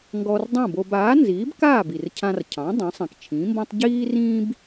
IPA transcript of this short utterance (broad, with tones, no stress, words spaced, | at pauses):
ŋɡɔ˧rdˤõ˥˩bo˧b aː˩˥nziː˩˥bkaː˥˩b i˩r cʰã˧rcʰɑ̃˩˥ dˤã˩˥sˤĩ˩kt͡ʃʰĩː˩˥mbɔ̃˥tˤ ɟiː˥rĩː˥b